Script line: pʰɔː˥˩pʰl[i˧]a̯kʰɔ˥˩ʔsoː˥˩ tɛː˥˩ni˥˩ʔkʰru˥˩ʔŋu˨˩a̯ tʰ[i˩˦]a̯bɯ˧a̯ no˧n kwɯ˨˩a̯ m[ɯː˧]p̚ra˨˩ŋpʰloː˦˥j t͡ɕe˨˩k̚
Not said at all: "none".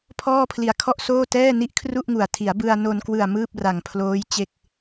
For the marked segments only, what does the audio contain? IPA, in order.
i˧, i˩˦, ɯː˥˩

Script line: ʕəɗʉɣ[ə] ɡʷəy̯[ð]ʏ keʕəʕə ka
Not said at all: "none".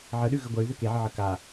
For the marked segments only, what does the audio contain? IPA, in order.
ə, ð

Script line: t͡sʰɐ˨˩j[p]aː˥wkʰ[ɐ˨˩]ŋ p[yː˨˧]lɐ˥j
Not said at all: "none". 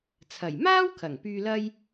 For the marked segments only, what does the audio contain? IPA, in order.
m, ɐ˨˩, yː˧

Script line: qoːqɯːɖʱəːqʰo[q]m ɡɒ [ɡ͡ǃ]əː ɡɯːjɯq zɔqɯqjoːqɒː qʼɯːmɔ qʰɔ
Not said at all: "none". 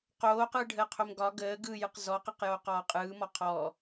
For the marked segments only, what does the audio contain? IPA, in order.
none, ɡ

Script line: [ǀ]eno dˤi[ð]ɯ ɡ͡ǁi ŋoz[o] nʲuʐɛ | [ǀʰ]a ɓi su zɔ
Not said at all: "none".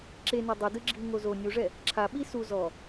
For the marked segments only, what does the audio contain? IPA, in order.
ǁ, d, o, ǁʰ

